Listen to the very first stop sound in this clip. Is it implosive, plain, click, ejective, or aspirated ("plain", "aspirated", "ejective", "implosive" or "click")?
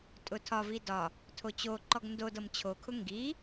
ejective